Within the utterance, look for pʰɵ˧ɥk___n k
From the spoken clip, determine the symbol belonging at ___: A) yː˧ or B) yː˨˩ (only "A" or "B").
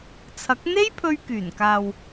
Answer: B